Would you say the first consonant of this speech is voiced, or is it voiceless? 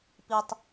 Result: voiceless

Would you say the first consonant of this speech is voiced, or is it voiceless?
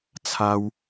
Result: voiceless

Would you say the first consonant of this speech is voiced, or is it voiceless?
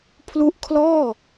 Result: voiceless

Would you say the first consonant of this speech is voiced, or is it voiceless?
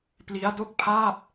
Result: voiceless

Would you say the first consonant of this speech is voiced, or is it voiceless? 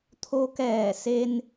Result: voiceless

